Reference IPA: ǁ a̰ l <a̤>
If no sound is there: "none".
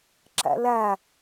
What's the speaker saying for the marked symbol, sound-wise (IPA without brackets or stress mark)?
a